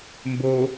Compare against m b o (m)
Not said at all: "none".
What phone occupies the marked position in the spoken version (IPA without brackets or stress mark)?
none